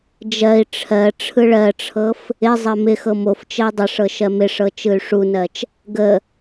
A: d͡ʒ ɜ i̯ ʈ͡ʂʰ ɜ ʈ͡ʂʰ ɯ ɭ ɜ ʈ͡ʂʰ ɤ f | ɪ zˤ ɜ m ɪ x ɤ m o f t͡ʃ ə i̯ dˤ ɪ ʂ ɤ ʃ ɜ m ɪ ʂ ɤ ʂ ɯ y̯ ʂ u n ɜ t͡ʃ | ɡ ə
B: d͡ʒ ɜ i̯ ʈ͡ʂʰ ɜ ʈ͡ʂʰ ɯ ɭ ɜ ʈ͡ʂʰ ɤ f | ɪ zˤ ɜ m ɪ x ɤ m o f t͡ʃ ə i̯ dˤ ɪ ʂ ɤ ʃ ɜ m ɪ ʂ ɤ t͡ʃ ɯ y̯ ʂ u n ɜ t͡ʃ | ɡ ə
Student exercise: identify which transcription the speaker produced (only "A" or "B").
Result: B